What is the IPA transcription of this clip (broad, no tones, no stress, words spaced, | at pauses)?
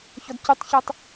çɔdcytˤçɯtˤ